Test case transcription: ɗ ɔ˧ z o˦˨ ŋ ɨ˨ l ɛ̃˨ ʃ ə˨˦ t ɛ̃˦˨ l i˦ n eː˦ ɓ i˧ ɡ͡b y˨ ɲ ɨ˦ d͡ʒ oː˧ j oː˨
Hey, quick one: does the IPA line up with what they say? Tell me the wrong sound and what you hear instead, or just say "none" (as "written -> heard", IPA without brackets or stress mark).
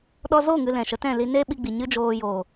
y˨ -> i˨